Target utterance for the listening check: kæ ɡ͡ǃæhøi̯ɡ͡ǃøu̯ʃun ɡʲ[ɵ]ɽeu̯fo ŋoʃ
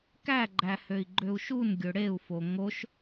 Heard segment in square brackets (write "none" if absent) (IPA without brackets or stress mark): ɵ